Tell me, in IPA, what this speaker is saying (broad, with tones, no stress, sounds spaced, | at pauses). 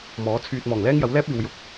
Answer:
m ɔː˨˥ t͡sʰ yː˧ t̚ m ɔː˨˩ ŋ l ɛː˥ ŋ j ɐ˨˥ w l ɛː˥ p̚ iː˨ w j ʊ˨˥ k̚